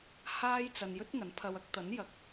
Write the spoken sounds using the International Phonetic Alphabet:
h aː˥ j t͡s ɐ˧ n j ɵ˥ t̚ ŋ ɐ˨˥ n pʰ ɐ˧ w ɐ˧ k̚ t̪ ɐ˨˥ n j ɐ˨ k̚

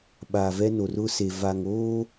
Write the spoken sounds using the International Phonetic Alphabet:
ɓ a˨ v ɛ˦ n o˨ r ʊ˦ s e˨ v a˨ ŋ oː˦

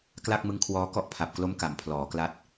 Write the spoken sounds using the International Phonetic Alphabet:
k l a˥˩ k̚ m ɯ˦˥ ŋ kʰ w ɔː˦˥ k ɔ˥˩ ʔ pʰ a˨˩ p̚ k l o˦˥ m k a˩˦ m pʰ l ɔː˩˦ k l a˦˥ t̚

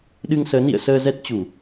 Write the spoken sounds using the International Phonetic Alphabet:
ɗ ɨ˧ ŋ s əː˨˦ n ḭ˧˨ ə̯ s əː˧ z ɛ˦˥ t̚ t͡ɕ u˧˩˨

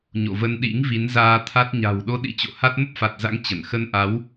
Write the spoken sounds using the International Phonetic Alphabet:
ɲ o̰˧˨ v ə˧ n ɗ ḭ˧˥ ŋ v i˨˦ n z aː˧ t̪ʰ a˦˥ t̚ ɲ a̤˨˩ w ɗ o˨˦ ɗ ḭ˧˥ t͡ɕ o̰˧˨ h a˦˥ t̚ m ə˦˥ p̚ f a˨˩ t̚ z a̰˧˥ ŋ t͡ɕ ə˧˩ n x ə˧ n ʔ a˨˦ w

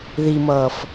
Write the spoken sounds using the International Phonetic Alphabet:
ð i m ʌː f

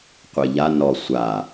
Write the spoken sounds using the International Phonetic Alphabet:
qʷ e ʎ a n ɔ sʷ a

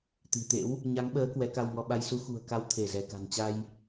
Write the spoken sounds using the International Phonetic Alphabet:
t̪ i̤˨˩ t̪ ḛ˧˥ w | ɲ a˨˦ ŋ ɓ əː˨˦ k w ɛ˨˦ k a˧ w ŋ ɔ˧ ɓ a˧ j s u˨˦ x ṳ˨˩ ə̯ k a˨˦ w t̪ʰ e˧˩ z ɛ˧˩ k a̤˨˩ n t͡ɕ a˧ j

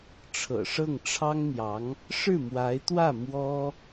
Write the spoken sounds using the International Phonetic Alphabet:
ʈ͡ʂʰ ɤ̰˨˩ ʂ ɤ˥˩ ŋ ʈ͡ʂʰ ɑ˥ ŋ n̪ j ɑ˧˥ ŋ | ʂ ɻ̩˥˩ m w a˧˥ ɪ̯ t̪ w ä˥˩ m w ɔ˥

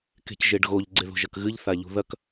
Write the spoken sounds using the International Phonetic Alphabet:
k e̤ c ʒ e ɖ ɣ o ʎ ɡ͡ǀ e ð o̤ ʒ ɐ k ɣ ɨ ʎ θ a ʎ ṳ ð ɐ k

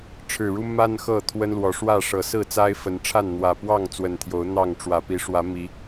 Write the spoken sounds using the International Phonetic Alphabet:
ʈ͡ʂʰ ɻ̩˨˩ ɻ u˦ m a˦ n x ɤ˥˨ t̪ʰ w ə˦ n l w ɔ˨˦ ʂ w ä˥˨ ʂ ɤ˨˦ s ɹ̩˥˨ t͡s a˦ ɪ̯ f ə˨˦ n ʈ͡ʂʰ a˥˨ n n̪ w ä˨˩ p w ɑ˥˨ ŋ t͡s w ə˨˩ n t̪ʰ j o˨˦ ʊ̯ n̪ ɑ˥˨ ŋ ʈ͡ʂ w ä˨˩ p i˨˦ ʂ w ä˨˦ m i˨˦

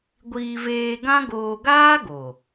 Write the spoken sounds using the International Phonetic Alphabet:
ɡʷ iː˧ v eː˧ ɡ ã˦ ɡ oː˧ ɡ aː˦ ɡ o˨

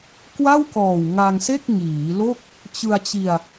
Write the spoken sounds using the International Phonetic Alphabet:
k w a˥˩ w k ɔː˨˩ w ŋ a˧ ŋ s e˥˩ k̚ ŋ iː˩˦ l o˥˩ k̚ | t͡ɕ ɯ˧ a̯ t͡ɕ i˧ a̯

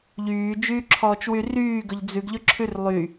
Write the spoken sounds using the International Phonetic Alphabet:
ʎ yː d͡ʒ yː ǁʰ ɔː t͡ʃ w y r yː ɡ ɵ ʎ d͡z ʉ ɡ ʎ ɵ ǁʰ ʉ r lˠ y

